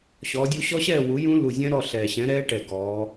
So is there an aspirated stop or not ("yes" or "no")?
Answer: no